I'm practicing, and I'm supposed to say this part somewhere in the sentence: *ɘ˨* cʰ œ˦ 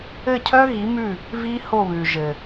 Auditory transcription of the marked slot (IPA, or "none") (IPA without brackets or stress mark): ɘ˦˨